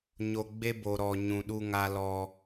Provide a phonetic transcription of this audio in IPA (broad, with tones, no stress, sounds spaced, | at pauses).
ɲ o˨ ɡ͡b e˦ b o˨ ɾ ɔ˨ ɲ ũ˨ ɗ u˦ ŋ a˦ l ɔ˦